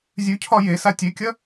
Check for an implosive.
absent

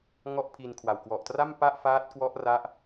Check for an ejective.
absent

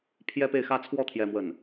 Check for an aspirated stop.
present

